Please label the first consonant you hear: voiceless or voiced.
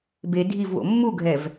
voiced